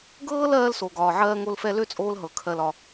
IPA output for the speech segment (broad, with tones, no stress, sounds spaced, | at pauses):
ɡ ɤː˥ l ɜː˥ l s o˨ ɡ ɒː˨ ʕ ɜː˦ ŋ o˦ l f ɛ˦ l ø˥ t͡sʼ oː˦ l ɦ ɤ˩ kʰ ɜ˨ l ɒ˩